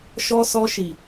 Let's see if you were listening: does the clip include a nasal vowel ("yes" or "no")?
no